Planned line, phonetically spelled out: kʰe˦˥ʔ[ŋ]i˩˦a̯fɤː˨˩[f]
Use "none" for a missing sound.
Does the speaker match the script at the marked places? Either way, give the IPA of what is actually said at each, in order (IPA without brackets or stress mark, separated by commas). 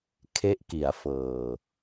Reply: k, none